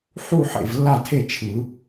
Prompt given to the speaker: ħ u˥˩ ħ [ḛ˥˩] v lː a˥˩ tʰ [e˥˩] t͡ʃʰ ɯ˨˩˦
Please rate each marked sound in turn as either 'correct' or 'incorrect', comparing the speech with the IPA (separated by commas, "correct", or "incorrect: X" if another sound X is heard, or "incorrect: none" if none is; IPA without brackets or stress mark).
correct, correct